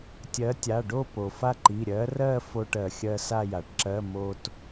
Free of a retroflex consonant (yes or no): no